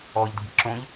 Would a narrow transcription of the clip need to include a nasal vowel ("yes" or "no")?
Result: yes